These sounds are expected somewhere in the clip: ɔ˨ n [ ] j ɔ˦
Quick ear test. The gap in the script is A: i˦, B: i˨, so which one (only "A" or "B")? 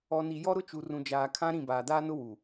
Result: B